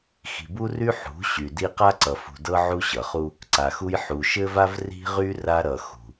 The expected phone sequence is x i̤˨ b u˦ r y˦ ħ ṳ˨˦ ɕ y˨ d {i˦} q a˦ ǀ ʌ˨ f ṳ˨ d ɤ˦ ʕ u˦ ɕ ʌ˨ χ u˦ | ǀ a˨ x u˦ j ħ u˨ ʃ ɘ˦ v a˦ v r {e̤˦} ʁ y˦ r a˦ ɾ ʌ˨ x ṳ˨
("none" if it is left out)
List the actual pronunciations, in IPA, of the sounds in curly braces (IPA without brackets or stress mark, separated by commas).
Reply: i˦, i̤˦